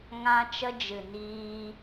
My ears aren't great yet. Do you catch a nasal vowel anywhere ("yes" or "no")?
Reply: yes